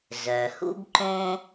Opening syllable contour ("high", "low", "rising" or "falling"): low